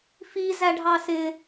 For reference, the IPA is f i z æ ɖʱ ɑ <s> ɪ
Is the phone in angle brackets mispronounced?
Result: no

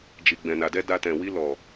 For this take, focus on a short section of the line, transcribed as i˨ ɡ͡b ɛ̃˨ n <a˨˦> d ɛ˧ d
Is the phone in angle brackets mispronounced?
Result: yes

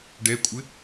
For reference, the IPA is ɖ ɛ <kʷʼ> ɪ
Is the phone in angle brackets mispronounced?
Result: no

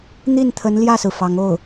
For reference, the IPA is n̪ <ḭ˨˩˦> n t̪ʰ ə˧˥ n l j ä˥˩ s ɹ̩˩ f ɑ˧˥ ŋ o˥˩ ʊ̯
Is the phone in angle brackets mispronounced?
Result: yes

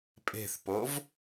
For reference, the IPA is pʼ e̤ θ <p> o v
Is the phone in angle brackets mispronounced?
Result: no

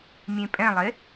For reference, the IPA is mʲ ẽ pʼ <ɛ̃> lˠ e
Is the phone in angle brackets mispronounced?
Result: no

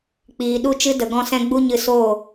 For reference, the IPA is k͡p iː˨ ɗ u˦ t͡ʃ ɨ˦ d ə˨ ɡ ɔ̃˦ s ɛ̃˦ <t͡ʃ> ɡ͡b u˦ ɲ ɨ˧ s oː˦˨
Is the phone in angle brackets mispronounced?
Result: yes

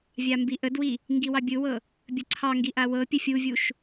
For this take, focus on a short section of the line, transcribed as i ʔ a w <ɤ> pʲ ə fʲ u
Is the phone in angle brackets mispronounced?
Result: no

